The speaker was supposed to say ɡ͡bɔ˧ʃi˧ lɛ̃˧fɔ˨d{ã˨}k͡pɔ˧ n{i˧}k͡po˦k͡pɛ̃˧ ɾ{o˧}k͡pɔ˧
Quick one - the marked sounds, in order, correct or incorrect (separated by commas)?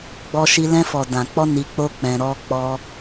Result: correct, correct, incorrect